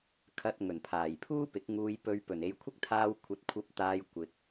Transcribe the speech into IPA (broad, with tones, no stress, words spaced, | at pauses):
kʰɐ˧t̚ ŋɵ˨˩npʰaː˨˩jpʰuː˥ pɪ˨˥k̚ ŋuː˨jpɵ˨˧ɥ pɵ˨˩ne˨˧jkʷʰɪ˥k̚t̪ʰaː˧w kʷʰɐ˨˥t̚ kʷʰɐ˨˥p̚t̪aː˨j kʷɪ˨k̚